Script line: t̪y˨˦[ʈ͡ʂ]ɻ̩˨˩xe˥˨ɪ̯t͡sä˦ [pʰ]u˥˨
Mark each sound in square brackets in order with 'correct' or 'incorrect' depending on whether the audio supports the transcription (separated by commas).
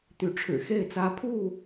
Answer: incorrect, correct